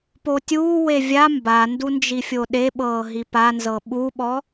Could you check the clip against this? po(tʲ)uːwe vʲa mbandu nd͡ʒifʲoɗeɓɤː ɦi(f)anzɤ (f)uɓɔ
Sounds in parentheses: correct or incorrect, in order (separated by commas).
correct, incorrect, incorrect